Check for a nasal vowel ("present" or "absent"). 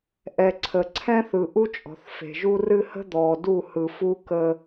present